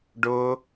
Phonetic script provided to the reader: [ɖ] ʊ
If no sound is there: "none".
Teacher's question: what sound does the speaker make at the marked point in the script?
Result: ɖ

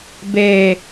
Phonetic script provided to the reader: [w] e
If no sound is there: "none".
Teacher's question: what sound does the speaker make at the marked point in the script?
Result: b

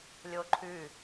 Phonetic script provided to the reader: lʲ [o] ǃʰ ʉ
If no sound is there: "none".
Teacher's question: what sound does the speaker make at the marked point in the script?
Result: o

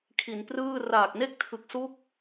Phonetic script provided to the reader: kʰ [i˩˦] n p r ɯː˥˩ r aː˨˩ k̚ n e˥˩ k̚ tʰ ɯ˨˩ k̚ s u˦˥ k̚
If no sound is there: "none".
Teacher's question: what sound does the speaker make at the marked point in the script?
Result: i˩˦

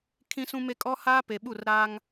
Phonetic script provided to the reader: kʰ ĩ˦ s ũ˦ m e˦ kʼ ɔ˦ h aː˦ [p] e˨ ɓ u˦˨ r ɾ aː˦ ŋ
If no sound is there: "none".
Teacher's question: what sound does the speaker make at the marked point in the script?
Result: p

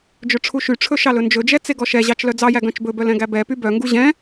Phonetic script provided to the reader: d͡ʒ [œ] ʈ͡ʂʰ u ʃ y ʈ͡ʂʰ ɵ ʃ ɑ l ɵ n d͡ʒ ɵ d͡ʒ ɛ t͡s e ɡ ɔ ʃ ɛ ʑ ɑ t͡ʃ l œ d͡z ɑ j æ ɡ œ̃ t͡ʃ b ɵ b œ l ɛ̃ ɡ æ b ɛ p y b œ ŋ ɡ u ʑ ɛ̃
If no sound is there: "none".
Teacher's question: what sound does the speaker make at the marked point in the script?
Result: ɵ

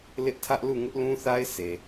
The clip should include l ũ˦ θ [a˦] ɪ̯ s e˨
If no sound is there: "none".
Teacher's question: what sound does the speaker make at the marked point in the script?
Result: a˦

